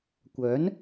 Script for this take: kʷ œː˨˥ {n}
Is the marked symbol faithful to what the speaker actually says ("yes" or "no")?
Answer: yes